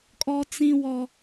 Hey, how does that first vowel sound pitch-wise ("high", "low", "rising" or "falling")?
high